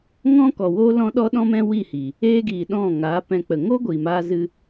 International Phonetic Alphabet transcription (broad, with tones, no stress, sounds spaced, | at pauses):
ŋ ɔ̃˦ k ɔ˨ w oː˦ l ɔ̃˦ ɗ ɔ˦ ɗ ɔ̃˦ m ɛ̃˦ w i˦˨ h i˨ | eː˦ ɡ iː˨ ɗ ɔ̃˦˨ ŋ aː˨˦ p ɛ̃˧ k͡p ə˨ ŋ o˦ ɡʷ i˨ m aː˦ z ɨ˦